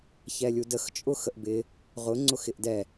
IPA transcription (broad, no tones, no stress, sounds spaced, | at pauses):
ç ɛ lʲ u d ə x t͡ʃʼ ʊ x ə ʔ b ɪ | ʁ ʊ ŋ͡ǀ ʊ x ɪ ʔ d ɛ